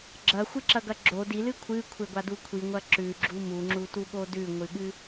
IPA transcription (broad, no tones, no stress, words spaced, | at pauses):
ɡ͡ǁɐxʷɨǁɐɡɐ ɡ͡ǁo dilɨ kʷʰɨkʷʰeɡʷadu kʷʰiŋʷɐ ǁʉɡ͡ǁu muŋ͡ǁutuɠo dʉŋʷɨɠɨ